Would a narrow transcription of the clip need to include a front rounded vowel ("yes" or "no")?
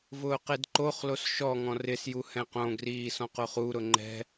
no